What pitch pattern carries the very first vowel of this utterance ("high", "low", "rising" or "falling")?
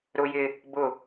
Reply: high